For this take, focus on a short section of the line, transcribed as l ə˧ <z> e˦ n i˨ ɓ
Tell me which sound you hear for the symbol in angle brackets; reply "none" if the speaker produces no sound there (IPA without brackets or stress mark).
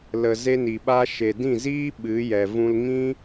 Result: z